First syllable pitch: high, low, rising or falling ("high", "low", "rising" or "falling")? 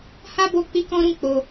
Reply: high